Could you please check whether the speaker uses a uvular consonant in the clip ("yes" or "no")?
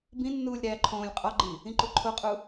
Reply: yes